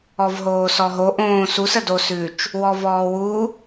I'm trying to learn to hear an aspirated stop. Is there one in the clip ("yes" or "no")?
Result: no